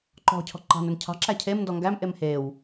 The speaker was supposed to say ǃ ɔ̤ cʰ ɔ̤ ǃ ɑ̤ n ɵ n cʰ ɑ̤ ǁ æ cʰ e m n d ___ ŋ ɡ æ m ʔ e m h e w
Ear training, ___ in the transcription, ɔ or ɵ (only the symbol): ɔ